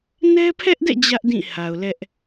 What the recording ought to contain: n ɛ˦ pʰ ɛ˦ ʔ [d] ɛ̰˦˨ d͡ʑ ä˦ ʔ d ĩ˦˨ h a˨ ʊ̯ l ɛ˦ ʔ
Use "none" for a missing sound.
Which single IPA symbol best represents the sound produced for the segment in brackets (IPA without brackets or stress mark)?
d